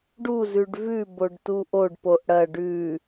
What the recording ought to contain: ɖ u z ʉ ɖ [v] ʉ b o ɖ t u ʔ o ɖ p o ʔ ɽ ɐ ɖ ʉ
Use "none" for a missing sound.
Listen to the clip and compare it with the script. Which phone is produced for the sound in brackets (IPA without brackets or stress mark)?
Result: v